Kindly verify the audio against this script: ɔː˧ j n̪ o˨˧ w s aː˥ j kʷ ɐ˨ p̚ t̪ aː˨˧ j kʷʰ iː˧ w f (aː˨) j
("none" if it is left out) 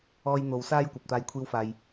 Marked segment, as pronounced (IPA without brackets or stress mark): aː˨